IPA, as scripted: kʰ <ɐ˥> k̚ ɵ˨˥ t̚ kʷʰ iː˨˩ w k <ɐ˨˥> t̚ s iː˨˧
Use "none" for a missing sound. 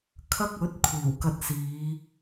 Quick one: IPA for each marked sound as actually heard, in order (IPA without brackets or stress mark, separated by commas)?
ɐ˥, ɐ˧